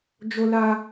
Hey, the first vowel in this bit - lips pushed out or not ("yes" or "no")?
yes